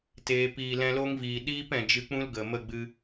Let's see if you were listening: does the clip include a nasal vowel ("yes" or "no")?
yes